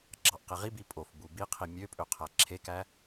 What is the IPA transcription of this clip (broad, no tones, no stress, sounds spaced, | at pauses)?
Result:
ɡ͡ǁ ɑ ʔ q i ʁ i b i pʼ o f b u b i qʰ i mʲ ø pʼ ø qʰ æ ǁʰ e k æ